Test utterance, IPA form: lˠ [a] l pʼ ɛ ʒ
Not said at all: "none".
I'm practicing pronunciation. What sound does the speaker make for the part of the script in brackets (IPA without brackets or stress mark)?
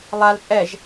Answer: a